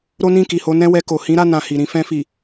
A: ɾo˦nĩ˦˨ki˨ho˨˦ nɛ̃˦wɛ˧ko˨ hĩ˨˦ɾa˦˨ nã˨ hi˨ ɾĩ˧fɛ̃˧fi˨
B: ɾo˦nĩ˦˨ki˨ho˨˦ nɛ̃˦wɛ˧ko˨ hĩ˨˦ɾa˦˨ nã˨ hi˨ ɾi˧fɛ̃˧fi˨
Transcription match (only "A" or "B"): A